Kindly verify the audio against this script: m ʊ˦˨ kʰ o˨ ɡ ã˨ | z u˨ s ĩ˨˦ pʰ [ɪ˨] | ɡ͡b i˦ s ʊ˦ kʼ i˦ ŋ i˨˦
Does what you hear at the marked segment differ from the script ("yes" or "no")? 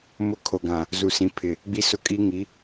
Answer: no